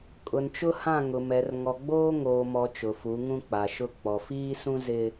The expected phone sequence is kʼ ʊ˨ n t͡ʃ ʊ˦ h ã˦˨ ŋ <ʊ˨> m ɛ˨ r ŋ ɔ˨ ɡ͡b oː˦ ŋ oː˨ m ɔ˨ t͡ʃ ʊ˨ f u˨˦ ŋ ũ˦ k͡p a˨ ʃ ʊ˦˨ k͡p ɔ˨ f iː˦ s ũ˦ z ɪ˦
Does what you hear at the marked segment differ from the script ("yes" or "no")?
no